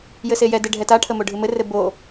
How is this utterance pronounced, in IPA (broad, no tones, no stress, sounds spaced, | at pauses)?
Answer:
j ɘ s e j ɛ d e ɖʱ ɛ t a ʈʰ ə m o ɖʱ ɨ m ɘ r ɘ b o